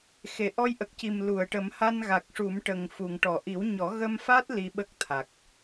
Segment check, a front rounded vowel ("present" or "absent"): absent